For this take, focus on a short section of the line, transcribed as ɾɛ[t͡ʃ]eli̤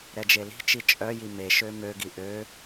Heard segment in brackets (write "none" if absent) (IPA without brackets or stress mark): d͡ʒ